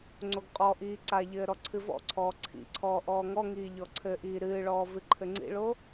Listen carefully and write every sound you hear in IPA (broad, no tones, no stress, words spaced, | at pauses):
ŋ͡ǀoɡqʼɔʔiː ǀaʎɘː ɾɔǀʰɨvɔ̰ǀʰɔː ǀʰḭǀʰɔː ʔɔːŋɔŋiː ʎɔǀʰɘʔiː ɾɨːɭɔː vɨǃʰɘŋ͡ǀḭɭo